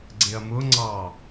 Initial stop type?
click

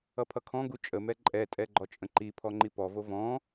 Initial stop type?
aspirated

